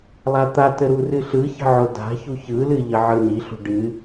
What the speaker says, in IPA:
lˠ a t̪ a t ə ɾ u r ɨ ɬ ɯ ç ə̤ ʕ o d a̤ ç u ç ɯ l ɨ ʎ ə ʕ ɯ n i ɬ ṳ ɖ ɨ

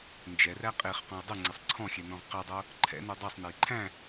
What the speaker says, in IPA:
n d͡ʒ ɛ r æ qʼ e χ q ɔ̃ j dˤ y ŋ͡ǀ e sˤ ǀʰ ɔ̃ xʲ ɛ n ɔ̃ ʁ q ɛ dˤ o | ǃʰ ɛ̰ n u dˤ ɛ sˤ n e j ǃʰ æ̃

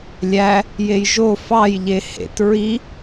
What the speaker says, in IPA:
lʲ æ | j e j ʒ o f ɑ j ʎ e h ḛ t ɹ i

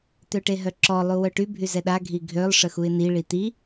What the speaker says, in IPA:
t̪ ø ʈ e ɦ œ ǁ ɔ lˠ u w œ ʈ y bʱ y z ɛ ɗ a ɡʱ i ɡʱ ø lˠ ʂ ə x u ɪ̯ n i ɭ i t̪ i

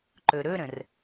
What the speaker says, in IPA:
ǃ ɵ ɾ ɵ ɾ ə̃ r

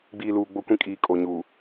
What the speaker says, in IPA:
ɡ͡b iː˨ l uː˨ ɡ͡b o˦ kʷ ĩ˦ kʼ iː˨ kʼ o˨ ɲ uː˨

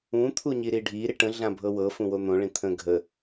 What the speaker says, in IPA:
ũ t̪ʰ u ɲ i ɾ i ɖʱ i ɾ i ʈ ə̃ ɮ ã bʱ ɤ w ɤ f ũ w o n̪ õ ɭ ĩ t̪ʰ ə̃ ɡʱ ə

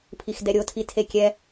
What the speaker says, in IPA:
pʰ i x d ɛ ɾʲ o tʰ i tʰ e kʲ ɛ

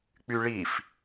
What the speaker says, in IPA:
k͡p y ɭ i f

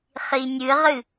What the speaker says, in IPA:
χ i nʲ ɨ ʁ ɨ

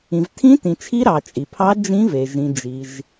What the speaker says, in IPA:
ĩ˩ v tʰ ĩ˧˥ t ĩ˩ t͡ʃʰ i˧˥ ɾ ɑ˩ t͡ʃʼ i˩ pʰ ɑ˧˥ d͡ʒ ĩ˧˥ v e˩ ʒ ĩ˩ d͡ʒ i˩ ʒ

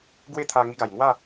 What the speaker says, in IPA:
ɡ w e˥˧ t̪ʰ a˧ ŋ i˧ ɡ a˨˩ j ŋ w a˥˧

